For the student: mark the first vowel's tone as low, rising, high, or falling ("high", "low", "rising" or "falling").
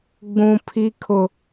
high